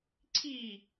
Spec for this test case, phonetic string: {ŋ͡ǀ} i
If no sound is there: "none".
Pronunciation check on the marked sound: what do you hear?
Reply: ǀʰ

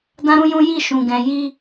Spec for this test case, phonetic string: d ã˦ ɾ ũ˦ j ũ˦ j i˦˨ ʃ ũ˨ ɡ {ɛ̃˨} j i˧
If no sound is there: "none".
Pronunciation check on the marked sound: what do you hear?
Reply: ɛ̃˨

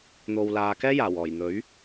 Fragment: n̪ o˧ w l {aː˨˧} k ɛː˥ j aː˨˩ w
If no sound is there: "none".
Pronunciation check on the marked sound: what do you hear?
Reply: aː˧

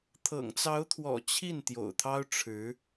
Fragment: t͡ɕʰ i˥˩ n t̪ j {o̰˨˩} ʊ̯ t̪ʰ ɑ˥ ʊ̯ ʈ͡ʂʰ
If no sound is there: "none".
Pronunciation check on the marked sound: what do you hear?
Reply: o̰˨˩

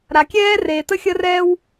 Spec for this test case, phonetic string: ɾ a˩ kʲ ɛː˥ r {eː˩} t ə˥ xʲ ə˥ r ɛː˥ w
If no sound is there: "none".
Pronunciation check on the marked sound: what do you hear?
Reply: eː˩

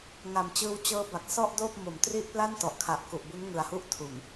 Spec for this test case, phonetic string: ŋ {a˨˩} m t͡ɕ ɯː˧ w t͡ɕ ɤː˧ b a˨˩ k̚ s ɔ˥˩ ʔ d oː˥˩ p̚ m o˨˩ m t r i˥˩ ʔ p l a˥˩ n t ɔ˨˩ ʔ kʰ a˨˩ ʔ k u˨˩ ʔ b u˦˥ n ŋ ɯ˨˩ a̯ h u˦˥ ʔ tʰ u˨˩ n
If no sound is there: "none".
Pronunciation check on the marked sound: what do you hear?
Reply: a˨˩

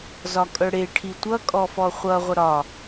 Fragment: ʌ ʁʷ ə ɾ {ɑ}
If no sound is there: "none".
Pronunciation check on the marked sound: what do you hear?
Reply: ɒ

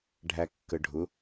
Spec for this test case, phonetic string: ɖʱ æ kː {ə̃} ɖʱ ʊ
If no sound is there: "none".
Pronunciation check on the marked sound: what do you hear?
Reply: ə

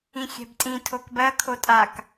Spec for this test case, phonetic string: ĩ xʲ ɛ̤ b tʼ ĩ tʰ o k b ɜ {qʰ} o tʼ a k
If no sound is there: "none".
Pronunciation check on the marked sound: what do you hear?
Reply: kʰ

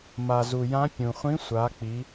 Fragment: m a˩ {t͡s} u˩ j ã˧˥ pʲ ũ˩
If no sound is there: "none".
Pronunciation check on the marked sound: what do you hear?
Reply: z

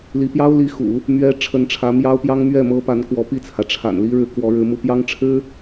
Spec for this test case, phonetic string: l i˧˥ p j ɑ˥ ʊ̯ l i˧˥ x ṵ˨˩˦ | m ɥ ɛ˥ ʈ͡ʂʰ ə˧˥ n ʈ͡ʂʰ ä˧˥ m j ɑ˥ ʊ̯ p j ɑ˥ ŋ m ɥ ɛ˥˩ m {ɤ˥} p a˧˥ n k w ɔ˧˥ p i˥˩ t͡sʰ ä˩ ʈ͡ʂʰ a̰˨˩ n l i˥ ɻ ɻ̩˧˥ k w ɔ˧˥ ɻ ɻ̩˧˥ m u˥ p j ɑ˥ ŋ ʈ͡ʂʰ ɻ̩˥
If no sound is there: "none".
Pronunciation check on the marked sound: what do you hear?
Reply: ɤ˥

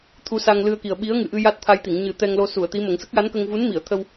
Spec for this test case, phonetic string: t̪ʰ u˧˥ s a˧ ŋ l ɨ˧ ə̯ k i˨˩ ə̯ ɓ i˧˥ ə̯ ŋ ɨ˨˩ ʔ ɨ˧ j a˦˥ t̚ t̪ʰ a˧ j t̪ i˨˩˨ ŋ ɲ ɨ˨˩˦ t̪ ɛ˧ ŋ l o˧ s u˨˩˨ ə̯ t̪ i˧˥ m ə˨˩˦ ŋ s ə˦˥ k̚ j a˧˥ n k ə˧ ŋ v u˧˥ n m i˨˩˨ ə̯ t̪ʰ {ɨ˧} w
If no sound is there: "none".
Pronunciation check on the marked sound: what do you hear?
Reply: ə˧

